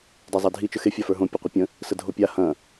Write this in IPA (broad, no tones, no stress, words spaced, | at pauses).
dazˤadʱi t͡ʃəxe fʲafə˞ɦõ pʲɵqʷəpʲə̃ | sədʱopʲa hɐ̃